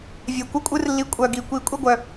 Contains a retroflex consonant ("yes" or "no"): no